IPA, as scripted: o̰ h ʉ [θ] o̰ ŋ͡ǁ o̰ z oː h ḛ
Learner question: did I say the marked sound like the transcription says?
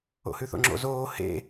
yes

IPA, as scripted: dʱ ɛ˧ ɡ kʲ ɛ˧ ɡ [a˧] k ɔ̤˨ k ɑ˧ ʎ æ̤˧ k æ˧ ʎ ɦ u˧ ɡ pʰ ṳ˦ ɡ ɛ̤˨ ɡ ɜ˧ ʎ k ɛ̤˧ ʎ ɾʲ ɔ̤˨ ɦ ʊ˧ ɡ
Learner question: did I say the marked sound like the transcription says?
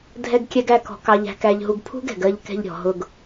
no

